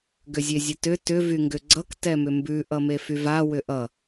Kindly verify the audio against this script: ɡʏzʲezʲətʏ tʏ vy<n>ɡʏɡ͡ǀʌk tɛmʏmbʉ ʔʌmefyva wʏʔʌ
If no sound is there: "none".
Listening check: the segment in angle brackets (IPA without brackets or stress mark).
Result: ŋ